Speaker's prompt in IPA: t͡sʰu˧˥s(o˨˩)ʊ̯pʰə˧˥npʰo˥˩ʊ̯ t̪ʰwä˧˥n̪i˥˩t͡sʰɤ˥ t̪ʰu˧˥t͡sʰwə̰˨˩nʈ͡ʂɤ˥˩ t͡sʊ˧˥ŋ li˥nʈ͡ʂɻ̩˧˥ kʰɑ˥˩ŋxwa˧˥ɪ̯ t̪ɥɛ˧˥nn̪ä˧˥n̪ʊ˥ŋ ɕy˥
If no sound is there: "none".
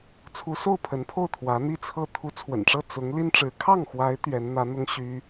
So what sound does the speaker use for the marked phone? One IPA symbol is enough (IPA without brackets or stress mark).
o˥˩